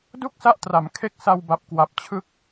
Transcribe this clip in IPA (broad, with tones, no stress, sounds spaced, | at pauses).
d u˥˩ k̚ s a˦˥ ʔ t r a˩˦ m kʰ e˥˩ k̚ s a˧ w b a˨˩ p̚ k w a˨˩ p̚ t͡ɕʰ ɯ˦˥ k̚